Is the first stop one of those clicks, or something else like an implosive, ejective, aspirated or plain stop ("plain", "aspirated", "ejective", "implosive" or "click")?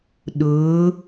implosive